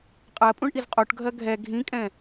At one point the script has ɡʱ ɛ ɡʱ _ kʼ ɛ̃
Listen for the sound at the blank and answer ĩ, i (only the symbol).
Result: ĩ